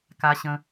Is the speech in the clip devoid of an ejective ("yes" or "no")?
yes